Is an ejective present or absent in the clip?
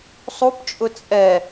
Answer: present